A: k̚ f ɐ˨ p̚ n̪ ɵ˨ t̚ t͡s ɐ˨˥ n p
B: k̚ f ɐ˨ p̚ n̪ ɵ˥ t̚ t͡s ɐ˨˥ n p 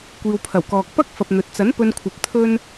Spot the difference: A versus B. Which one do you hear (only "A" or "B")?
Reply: A